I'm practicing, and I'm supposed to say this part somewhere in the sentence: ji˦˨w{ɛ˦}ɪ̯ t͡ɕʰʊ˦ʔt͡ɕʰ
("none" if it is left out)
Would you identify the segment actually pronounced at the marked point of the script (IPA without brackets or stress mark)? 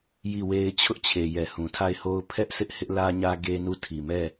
e˦